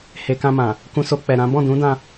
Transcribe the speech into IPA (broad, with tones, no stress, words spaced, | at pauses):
he˨kã˧ mã˨ | kũ˧so˧ k͡pɛ˨ ɾã˨˦ bɔ̃˦˨dũ˨˦dã˧